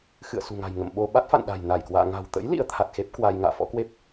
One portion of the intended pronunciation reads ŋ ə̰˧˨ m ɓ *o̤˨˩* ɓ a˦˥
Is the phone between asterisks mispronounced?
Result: yes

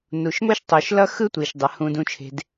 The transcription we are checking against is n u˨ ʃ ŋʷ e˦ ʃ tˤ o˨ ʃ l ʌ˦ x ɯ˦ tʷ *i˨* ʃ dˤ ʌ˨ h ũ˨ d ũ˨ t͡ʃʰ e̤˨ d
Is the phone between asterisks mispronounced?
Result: no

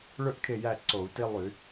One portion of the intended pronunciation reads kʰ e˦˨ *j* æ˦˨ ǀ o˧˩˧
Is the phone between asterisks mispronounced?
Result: no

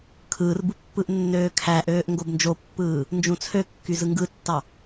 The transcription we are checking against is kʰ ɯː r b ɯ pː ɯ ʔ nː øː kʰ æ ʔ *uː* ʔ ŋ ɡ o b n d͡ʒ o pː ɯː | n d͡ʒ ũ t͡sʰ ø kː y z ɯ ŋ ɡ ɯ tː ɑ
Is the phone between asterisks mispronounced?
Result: yes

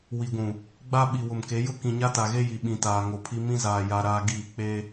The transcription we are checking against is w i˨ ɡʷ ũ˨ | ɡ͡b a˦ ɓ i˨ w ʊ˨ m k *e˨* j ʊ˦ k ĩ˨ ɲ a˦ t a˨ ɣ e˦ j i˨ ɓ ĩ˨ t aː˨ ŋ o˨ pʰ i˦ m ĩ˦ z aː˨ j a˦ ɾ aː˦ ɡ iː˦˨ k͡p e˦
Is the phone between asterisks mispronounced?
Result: yes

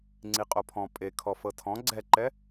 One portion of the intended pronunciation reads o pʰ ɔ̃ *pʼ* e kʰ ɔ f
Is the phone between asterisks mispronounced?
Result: no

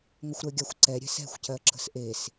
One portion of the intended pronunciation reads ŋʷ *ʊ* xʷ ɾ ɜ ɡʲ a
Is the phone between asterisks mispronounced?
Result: yes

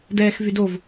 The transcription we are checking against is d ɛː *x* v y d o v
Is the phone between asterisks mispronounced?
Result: no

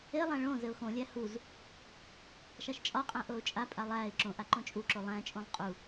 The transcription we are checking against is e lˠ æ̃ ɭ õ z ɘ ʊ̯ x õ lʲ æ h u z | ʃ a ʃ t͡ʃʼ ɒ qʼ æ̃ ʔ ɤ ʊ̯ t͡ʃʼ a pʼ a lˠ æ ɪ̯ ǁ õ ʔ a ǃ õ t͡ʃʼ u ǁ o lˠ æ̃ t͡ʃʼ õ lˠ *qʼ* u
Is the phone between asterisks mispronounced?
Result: no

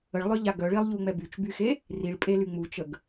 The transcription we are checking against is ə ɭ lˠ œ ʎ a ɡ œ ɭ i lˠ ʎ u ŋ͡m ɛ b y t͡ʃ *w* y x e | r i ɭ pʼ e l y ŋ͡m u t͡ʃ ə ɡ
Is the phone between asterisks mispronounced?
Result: yes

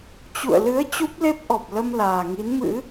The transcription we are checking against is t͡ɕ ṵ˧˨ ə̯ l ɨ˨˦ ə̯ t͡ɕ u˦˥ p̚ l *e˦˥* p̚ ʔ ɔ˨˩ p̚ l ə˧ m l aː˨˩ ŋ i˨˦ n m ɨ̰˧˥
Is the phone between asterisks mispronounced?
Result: no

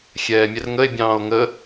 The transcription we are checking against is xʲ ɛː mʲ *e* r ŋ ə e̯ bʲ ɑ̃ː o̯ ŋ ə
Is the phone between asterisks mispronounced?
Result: yes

